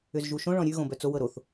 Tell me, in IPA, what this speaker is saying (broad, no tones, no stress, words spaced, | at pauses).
ʏzʒuʃõ ɭɔ̃ɾʲʉ ɣõbœt͡sow ɤɾoθ